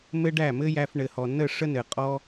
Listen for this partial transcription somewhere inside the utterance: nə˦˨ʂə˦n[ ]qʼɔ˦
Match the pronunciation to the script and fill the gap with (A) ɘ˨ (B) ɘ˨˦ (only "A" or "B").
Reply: A